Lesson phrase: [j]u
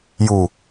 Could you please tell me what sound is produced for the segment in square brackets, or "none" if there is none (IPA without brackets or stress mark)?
j